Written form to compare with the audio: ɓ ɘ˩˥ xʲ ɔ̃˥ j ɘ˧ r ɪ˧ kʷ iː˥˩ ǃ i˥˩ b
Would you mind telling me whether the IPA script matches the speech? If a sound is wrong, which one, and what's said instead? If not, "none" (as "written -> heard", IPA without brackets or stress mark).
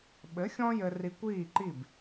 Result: ɪ˧ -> i˧